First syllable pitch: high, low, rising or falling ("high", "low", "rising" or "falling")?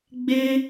high